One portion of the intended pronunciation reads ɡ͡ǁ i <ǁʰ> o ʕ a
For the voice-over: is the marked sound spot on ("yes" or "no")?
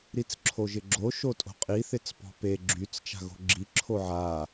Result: yes